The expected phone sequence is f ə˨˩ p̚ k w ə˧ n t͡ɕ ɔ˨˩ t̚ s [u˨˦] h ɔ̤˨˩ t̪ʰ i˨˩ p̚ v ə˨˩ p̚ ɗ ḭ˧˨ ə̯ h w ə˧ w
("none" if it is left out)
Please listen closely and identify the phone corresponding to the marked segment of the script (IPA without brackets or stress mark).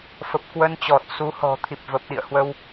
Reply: u˨˦